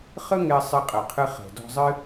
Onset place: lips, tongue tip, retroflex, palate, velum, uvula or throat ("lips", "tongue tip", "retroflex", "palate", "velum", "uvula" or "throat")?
uvula